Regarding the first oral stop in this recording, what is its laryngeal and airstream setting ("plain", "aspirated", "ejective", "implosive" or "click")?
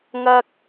plain